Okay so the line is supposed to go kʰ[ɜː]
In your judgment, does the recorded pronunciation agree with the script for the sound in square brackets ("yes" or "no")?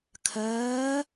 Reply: yes